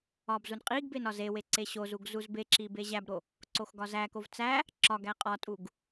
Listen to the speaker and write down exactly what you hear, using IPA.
ɒ b z u n qʼ i ɡ b e n ɒ z e w e ǀ e ɕ o z u ɡ z u z b e ǁ i b e ʑ æ b ɾ o | ǀ o x ɡ ɒ z æ k o v t͡s æ | ǁ ɒ ɡ æ qʼ ɒ tʼ u ɡ

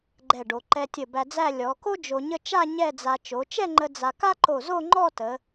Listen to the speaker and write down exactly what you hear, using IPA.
ɡ͡ǃ ɛ˧˩ ɖ o˩˧ ǃ ɛ˧ tʲ ə˧˩ b æ˧ d͡z æ˥˧ lʲ ɔ˩˧ k o˥ d͡ʒ o˧ ɲ ə˥ t͡ʃ a˥˧ ɲ ɛ˥˧ d͡z a˧ t͡ʃ o˩˧ t͡ʃ ɛ˥˧ ŋ͡ǃ ə˧ d͡z a˧ k a˥ ǃ o˧˩ z o˥˧ ŋ͡ǃ ɔ˥˧ t ə˩˧

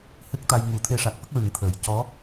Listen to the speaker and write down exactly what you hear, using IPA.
h ɨ˦˥ k̚ t̪ a˧ j ŋ u˨˩˦ t̪ʰ e˧ ʂ a˨˩ k̚ f ə˦˥ k̚ ɹ ɨ˨˩˦ ŋ t̪ʰ əː˨˩ j c ɔ˧˥

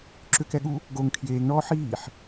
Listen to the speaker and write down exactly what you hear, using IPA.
ǁ ʏ k ɛ ɠ u | ɡ o ŋ kʰ j eː ŋ ɳ ɔː ħ iː ħ

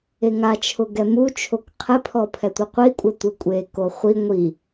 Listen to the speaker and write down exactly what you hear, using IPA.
e ŋ a t͡ʃʰ ʊ ɡ ɛ m u t͡ʃʰ o k qʰ ɛ pʰ ɔ pʰ ɛ tʷ i qʷ i kʷʼ ɛ tʷ ɪ kʷʼ e k o χʷ i ŋʷ i

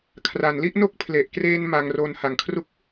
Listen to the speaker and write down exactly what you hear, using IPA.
kʰ r a˩˦ n l i˥˩ ʔ n o˥˩ k̚ pʰ l e˨˩ ʔ k r eː˧ n m a˧ ŋ r o˧ n h a˩˦ ŋ kʰ r u˥˩ k̚

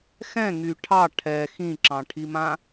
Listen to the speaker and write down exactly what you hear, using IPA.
x ɛ̃ ŋ y ʈʰ ɑ ʈʰ ɛ x ĩ ǁ ɑ̃ ʈʰ i m ã

